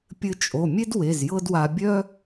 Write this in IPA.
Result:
pʲɘ˧t͡ʃʼo˩˧˩ mʲe˥dwe˩˧˩z jɤ˥dwa˧ bʲœ˥

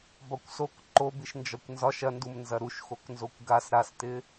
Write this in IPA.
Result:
bɒkʷsok ǃobiʃ nd͡ʒɒkʷnzɒʃ ɐndum nzɐɾuʃ xoknzokʷɡas ɾastɪ

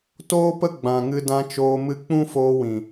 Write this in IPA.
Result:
toː˦pə˦ ɡ͡bã˨ ŋɨ˧dã˧t͡ʃoː˧ mɨ˧k͡pũ˦foː˧wĩ˨

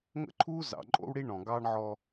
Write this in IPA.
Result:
ŋə̰˦ǃʰuː˦ zɑ̰˨ǃʼo̰˦wɽi˦ ɳɔ̃˨ɡɑː˦ɳʕɔ˦

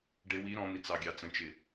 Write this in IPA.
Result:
ɖɪ wi ɾɔ̃n̪i t͡sɑɡʲɑt͡sə̃t͡ʃɪ

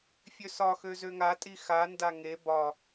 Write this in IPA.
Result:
fʲøsɒxø zøŋatʼi xanda ŋe bɒ

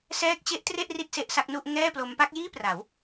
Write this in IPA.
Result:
sɛː˦˥k̚t͡ɕe˦˥ʔtre˥˩ʔ ri˥˩t̚se˦˥ʔsa˦˥k̚nu˥˩ʔ ŋɛː˥˩plo˦˥m pa˦˥k̚jiː˥˩pra˩˦w

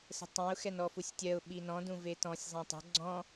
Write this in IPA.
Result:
sə̤tˤẽʊ̯ xɛnɔfusʲtʲɜʊ̯ ɓinɔ̃ dũvetɔ̃sʲ zˤẽtˤə̤ ɡ͡ǀɔ̃

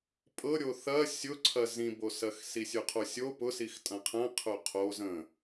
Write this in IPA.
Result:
pʼɤɾʲo θɐ sʲʊǀʰɐ zĩbosɐx sisʲʊqʰosʲo pʊsix tʼɐ̃qʰɐ̃ qʰʊqʰo zə̃

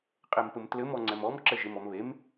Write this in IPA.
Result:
qʼempɘmtlɘm ɔŋ͡ǀɛmɔm ǁɘʒemɔmβem

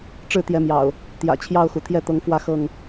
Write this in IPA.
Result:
ʈ͡ʂɻ̩˥˨t̪jɛ˨˦mjɑ̰˨˩ʊ̯ | t̪jä̰˨˩ t͡ɕʰjɑ˥˨ʊ̯xu˩ t̪ʰjɛ˥˨t̪ɤ˨˦ŋfwä˥˨ xɤ˥˨ŋ

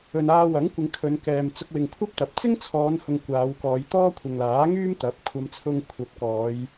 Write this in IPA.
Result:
ɵ˨naː˧wɐ˨˥ŋkʷɪ˨˧ŋ kʰɵ˨˧nkɛː˨m t͡sʊ˧k̚ wɪ˨ŋkʷʰɐ˥p̚t̪ɐ˨p̚ t͡sɪ˥ŋt͡sʰɔː˨˧nhʊ˨ŋ kʷaː˨˧wkɔː˨˧j t̪ɔː˥kʷʰɪ˨ŋlaː˨˥ ŋyː˥mt̪ɐ˨˥p̚ kʷʰɐ˧m t͡sʰʊ˧ŋkʷʰɐ˨˥p̚kɔː˨˧j

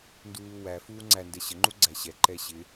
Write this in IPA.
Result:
nduːwæ fuːŋ͡ǀæ ndɛɕə ŋ͡ǃuɡ͡ǀæɕɛ ǃɛɕɪ

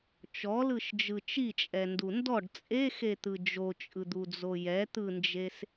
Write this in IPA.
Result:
t͡ʃɔlɯʃd͡ʒɯ t͡ʃit͡ʃʼɛndu ndɔɖ t͡sʼexet̪ɯ d͡ʒot͡ʃʼɯd̪ud͡zo jɛt̪ɯnd͡ʒes

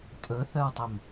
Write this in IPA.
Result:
tʼɵθœwtˤɵm

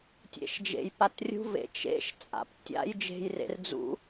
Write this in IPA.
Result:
tʲḛʃd͡ʒḛj patrʲṳvḛ t͡ʃḛʃ t͡sʼa̰p tʲa̰j d͡ʒe̤jrḛr d͡zṵ

